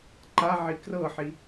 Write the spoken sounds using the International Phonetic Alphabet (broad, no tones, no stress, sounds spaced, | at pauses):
ǃ a ʕ i k r ɤ ħ i